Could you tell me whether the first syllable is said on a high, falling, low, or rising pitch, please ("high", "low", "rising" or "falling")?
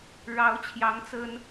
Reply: rising